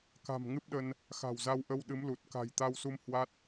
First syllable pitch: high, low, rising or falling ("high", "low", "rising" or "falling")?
low